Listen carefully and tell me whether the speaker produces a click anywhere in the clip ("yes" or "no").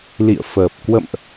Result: no